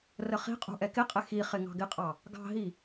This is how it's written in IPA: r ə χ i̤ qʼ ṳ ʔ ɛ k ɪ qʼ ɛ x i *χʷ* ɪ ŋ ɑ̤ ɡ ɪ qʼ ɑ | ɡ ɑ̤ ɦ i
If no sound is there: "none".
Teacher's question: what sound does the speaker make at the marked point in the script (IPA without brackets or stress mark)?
χ